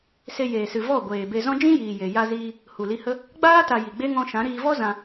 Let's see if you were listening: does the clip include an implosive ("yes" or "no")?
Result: no